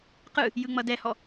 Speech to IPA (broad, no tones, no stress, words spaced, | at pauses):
qɯ | jɯŋ͡mʌdɛhɔ